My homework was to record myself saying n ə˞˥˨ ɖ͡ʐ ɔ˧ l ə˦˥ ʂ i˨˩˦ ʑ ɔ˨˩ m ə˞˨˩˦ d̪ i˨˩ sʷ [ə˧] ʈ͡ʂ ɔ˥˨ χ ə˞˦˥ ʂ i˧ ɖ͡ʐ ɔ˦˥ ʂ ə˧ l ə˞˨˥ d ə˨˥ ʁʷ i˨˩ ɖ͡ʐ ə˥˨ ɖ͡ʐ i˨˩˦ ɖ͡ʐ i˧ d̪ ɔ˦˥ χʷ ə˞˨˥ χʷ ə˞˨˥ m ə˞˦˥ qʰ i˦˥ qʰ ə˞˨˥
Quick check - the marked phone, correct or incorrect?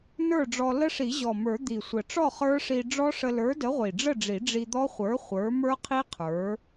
incorrect